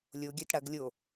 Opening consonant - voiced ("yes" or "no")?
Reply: yes